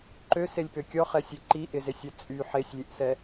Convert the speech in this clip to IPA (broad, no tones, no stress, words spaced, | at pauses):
ǃøselʲpø kʲɔχɛsʲe ǃi ʔɪzesʲɛ t͡sʼy ħesʲlʲeʔsɛ